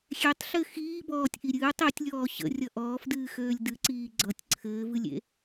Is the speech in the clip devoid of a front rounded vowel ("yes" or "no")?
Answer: no